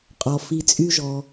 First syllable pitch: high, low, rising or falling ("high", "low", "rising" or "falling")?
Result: low